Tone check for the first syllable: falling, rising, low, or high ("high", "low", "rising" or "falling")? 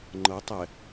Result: rising